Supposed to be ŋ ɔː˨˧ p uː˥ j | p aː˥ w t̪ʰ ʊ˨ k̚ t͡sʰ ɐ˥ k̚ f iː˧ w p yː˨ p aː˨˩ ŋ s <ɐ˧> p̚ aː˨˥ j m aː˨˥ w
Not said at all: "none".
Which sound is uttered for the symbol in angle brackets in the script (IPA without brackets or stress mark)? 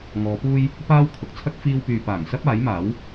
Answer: ɐ˥